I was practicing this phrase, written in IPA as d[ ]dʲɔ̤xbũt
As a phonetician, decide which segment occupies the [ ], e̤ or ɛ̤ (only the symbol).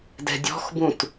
ɛ̤